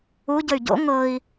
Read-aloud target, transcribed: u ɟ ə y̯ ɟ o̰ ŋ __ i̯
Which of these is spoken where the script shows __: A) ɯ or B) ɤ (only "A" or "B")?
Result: B